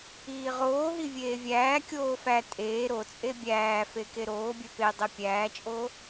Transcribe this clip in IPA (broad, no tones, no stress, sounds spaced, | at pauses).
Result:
iː ʁ oː ɦ i vʲ eː vʲ æː kʲ oː f æ tʼ eː ɾ o t͡sʼ e bʲ æː f e k e ɾ oː bʲ e p e dˤ e pʲ æː t͡ʃʼ oː